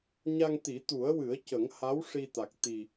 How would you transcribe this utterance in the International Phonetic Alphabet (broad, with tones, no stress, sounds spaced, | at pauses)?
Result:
ɲ a˧ ŋ t̪ i˨˩˦ t̪ u˨˩˦ ə̯ w ɨ˨˩˦ ə̯ c ə˨˩˦ ŋ h a˧˥ w ʂ i˧ t̪ a˨˩ k̚ t̪ i˨˩